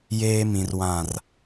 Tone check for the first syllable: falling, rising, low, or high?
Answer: low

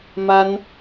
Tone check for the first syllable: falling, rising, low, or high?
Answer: high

